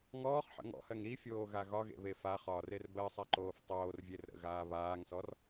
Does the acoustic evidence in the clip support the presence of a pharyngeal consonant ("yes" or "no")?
yes